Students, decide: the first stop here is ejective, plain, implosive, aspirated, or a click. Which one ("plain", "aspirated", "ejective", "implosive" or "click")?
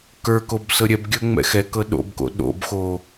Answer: plain